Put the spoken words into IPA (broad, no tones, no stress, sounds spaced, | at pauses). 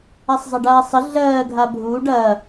a sˤ zˤ ɐ ɖ aː sˤ ə ɮ ɜː ɡʱ a bʱ uː ɖ ɐː